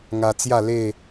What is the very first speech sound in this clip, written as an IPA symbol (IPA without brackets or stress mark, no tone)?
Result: ŋ